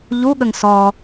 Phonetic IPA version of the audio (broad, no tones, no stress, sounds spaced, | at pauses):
ʎ u ɠ ə ŋ s ɔ